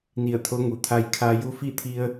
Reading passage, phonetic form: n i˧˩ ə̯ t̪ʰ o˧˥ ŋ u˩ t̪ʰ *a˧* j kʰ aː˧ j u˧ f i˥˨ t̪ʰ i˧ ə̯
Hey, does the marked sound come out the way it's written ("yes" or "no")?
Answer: yes